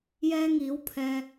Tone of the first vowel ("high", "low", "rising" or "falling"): high